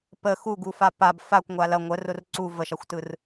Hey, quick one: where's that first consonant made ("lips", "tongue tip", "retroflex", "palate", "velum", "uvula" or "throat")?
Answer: lips